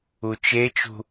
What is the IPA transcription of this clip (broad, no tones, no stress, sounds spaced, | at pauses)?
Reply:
u t͡ʃ e t͡ʃ ṳ